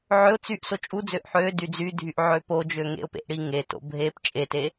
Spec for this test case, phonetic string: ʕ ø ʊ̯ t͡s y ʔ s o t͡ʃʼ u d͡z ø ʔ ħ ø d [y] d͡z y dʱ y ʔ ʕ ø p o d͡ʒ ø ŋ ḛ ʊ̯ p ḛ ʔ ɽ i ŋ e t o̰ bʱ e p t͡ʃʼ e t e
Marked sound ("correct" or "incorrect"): correct